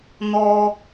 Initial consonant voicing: voiced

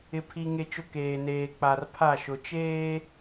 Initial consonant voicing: voiceless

